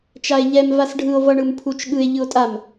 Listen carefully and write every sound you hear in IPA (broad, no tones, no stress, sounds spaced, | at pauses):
t͡ʃ a e̯ ʎ ɛ m v a s ɖʱ ɯ o̯ v ʌ ɳ ɯ m pʰ u t͡ʃ ɠ ɯ e̯ ʎ ɯ o̯ tʼ a m